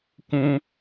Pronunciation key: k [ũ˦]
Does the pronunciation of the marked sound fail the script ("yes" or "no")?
no